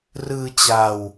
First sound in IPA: r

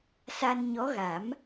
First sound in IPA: s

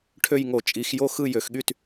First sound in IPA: ʈʰ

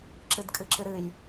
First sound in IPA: ǁ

